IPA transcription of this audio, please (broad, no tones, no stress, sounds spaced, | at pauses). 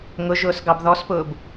ŋ ʊ ʒ ʊː s ɡ ɑ b ð ɔ s p ʊː b